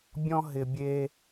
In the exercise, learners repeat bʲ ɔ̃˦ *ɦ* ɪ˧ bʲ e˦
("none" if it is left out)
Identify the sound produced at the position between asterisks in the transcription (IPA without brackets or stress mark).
ɦ